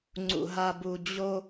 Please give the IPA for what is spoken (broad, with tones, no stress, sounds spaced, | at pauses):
ŋ͡ǀ ṵ˨ ɦ a˨ b u˨ d͡ʑ o˦